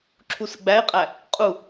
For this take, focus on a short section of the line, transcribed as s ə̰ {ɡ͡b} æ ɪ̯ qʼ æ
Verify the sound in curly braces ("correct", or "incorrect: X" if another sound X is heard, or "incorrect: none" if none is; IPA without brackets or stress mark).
correct